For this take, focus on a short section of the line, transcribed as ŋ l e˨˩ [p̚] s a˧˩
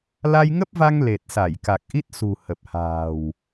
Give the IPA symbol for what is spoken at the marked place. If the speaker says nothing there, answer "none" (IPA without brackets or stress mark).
t̚